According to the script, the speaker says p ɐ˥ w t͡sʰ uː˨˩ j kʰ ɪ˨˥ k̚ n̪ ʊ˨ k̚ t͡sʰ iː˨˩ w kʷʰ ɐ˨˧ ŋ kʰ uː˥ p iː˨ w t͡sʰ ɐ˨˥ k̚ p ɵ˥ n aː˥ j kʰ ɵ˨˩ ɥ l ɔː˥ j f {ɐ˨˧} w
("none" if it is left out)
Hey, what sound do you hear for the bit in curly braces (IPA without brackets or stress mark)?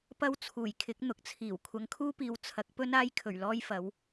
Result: ɐ˨˥